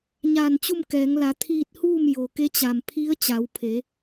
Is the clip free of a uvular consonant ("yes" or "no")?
yes